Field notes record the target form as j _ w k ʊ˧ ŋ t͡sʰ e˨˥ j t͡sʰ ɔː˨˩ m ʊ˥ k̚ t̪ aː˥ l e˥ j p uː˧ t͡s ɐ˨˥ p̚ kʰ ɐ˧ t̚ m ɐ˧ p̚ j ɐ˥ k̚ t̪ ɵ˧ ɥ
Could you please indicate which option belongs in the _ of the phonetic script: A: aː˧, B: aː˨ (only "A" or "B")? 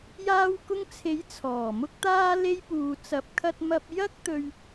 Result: A